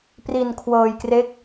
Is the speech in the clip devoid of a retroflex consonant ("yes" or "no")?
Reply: yes